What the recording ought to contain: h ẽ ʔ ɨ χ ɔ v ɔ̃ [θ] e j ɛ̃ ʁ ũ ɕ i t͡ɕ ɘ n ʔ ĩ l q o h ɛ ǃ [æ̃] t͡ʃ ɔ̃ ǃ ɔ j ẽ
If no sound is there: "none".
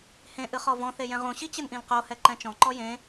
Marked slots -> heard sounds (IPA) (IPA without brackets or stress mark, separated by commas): θ, ɛ̃